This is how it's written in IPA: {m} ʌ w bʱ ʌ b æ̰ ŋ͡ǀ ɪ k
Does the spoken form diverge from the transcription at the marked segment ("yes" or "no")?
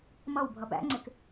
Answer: no